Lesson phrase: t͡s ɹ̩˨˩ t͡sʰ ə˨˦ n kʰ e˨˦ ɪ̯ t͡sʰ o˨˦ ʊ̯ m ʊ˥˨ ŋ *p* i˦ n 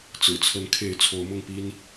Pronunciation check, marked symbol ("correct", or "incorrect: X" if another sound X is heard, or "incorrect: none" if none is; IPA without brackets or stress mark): correct